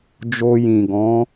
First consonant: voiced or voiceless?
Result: voiced